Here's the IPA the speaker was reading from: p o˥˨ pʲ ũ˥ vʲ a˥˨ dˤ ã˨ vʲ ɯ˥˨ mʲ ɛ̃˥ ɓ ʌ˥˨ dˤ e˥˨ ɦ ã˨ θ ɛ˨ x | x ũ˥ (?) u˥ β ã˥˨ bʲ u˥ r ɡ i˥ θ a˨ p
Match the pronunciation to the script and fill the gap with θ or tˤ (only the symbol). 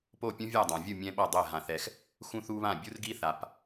θ